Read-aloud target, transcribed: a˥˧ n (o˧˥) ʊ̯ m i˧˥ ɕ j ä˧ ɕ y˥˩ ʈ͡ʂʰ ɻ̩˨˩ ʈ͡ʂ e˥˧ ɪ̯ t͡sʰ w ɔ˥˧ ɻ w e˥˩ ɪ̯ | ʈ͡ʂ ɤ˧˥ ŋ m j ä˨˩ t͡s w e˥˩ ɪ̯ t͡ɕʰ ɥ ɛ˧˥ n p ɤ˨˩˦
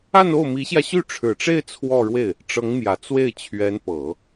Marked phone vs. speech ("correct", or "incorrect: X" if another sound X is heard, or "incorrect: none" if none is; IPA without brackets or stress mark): incorrect: o˥˩